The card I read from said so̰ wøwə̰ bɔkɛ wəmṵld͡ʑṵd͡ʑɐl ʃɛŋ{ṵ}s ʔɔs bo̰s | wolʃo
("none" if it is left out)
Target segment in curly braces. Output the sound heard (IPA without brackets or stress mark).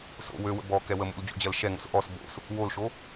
o̰